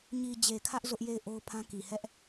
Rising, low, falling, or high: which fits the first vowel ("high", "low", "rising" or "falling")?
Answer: low